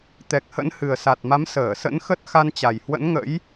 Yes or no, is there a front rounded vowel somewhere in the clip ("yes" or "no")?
no